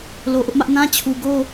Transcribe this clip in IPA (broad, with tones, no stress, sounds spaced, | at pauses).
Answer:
l o˨ ʔ ʊ˦ ʔ m ä˦ ʔ n ã˦ t͡ɕʰ u˨ ɡ o˦